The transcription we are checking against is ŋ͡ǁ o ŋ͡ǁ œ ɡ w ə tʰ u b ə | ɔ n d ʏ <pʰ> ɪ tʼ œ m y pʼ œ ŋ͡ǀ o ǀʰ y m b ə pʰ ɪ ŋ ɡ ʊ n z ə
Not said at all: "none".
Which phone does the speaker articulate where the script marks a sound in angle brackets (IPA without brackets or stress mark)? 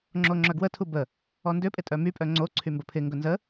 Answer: pʼ